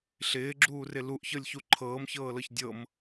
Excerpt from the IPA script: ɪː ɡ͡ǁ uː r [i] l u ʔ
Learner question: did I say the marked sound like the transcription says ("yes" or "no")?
no